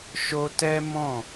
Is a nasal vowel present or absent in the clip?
present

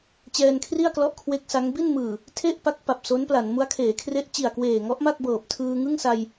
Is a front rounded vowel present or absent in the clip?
absent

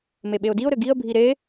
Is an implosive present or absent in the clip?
present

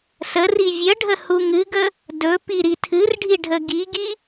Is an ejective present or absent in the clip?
absent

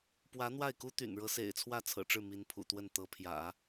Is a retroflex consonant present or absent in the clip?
present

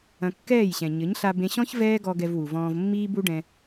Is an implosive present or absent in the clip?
absent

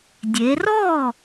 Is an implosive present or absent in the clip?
absent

